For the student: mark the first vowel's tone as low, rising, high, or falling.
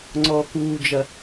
high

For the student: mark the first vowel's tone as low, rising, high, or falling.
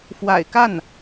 low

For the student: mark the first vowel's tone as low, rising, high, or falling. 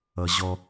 low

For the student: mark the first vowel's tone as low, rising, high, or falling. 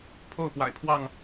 falling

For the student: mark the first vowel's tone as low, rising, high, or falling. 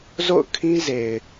falling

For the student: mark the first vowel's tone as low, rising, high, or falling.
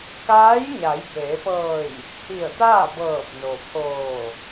rising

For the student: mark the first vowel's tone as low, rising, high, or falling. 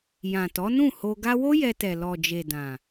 low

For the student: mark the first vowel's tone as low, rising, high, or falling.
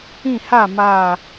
falling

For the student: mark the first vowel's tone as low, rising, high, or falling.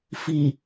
low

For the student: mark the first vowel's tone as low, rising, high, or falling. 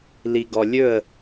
low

